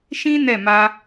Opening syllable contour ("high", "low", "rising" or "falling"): high